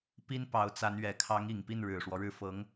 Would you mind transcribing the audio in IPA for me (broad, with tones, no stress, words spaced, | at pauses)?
pi˥n pɑ˧˥ʊ̯t͡sa˧˥nɥɛ˨˩ kʰɑ˧˥ŋ i˨˩ŋpi˥˩n ɻɻ̩˨˩ʂwɔ˦ɻɻ̩˥˩ fɤ˧˥ŋ